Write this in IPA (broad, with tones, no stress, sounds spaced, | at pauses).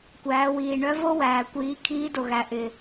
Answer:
kʷ æː˩˧ w iː˩ ɳ œ˧˥ v o˥ w æː˩ kʷ iː˩˧ kʰ iː˧˥ d o˩ ɣ æ˩˧ ʔ ɪ˩